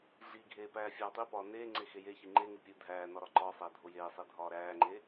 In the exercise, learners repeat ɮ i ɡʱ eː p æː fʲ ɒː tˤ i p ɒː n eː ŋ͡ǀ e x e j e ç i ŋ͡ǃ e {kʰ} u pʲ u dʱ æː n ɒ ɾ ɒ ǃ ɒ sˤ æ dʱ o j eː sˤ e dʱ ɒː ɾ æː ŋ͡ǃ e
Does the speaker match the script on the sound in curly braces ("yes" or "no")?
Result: no